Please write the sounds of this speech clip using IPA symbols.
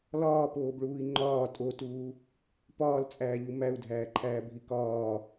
lɒːpoːbɭuːi̯ ŋ͡ǃɒː tʼotuː | pɒːlt͡sʼæːʎu mæu̯dʱæːǃʰæːbʱi kɒː

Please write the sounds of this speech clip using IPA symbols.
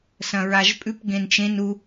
sɐ̃ɹaʒpʼʉp ɡẽnt͡ʃẽn u

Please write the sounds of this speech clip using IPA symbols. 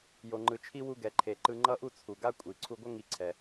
jo˩ŋ͡ǃɯ˩t͡ʃʰi˥ wu˧ɡɛ˩ ǃʰe˩ǃɯ˧ ŋ͡ǃʌ˥ʔu˥t͡sʰu˩ ɡa˥kʷʼi˩ ǀʰu˧ɡʷʌ˥ ŋi˧ ǀʰɛ˩

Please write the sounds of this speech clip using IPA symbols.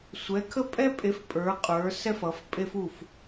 sʷɛ˨˦kʰə˦pʼɛ˦pʼe˨˦f pʼə˞˨˦qʼə˞˨˦ sɛ˦fʌ˨˦fpʼe˦f u˥˨f

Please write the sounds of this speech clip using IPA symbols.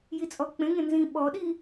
jit͡sʼɔk͡pẽŋẽ nzĩ ɓɔɗi

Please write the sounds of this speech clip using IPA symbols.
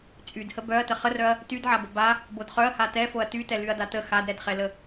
t͡sʼydhə bœɐ̯ təχərœɐ̯ | tydʕabə ba | bodχœɐ̯ha tɛfoɐ̯ tytɛ lyɐ̯datə xadɾɛdχɛlə

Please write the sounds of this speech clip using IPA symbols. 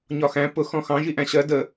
ɲɒxæ̃ pʊ xɔ̃xɑ̃ ʒiʔæ̃ɕɜ də

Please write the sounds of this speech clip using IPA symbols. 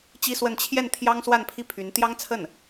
t͡ɕi˥swə˥˧n t͡ɕʰjɛ˥˩n t̪ʰjɑ˥ŋswa˥˧npʰi˥˩ pʰy˧˥n t̪jɑ˥ŋt͡sʰə˥˩n

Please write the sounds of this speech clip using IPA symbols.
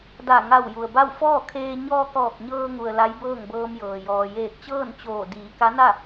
da˧˩ŋa˧˩w ju˩ə̯ba˥˨w fɔː˥˨kʰeː˧ ɲɔː˧kɔː˧˩k̚ɲɤː˧ŋu˩ə̯ la˧˥jbɤː˥˨ŋbɤː˧mjɤː˩ jɔː˩jeː˧˩k̚t͡ɕɤː˥˨nt͡ɕoː˧˩ diː˩˧ka˧˥na˥˨

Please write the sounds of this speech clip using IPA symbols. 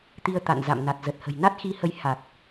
t̪i˧ə̯ t̪a̰˧˨n za̰˧˨mna˨˩t̚zə˨˩t̚hə̤˨˩j na˦˥t̚xi˨˦hə˨˦j ha˨˩k̚

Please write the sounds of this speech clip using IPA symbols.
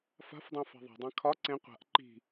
fa̤fdˤẽ fa̤ðˤa̤dˤã kʰɒ ǀẽ qʷa̤ʔ ǃi̤

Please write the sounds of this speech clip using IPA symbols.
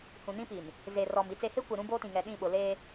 hũ˨nĩ˦pi˨n | ze˨rɔ˨m i˨t͡se˨he˦ kʷe˨ɾũ˦boː˦tĩ˨ ŋɛ˨ɗĩ˦˨ɓʊ˨ leː˦

